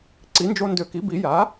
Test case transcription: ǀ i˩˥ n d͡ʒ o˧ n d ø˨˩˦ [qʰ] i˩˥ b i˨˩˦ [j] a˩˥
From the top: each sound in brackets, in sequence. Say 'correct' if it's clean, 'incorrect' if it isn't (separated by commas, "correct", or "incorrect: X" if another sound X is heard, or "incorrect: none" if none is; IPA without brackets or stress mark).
incorrect: k, correct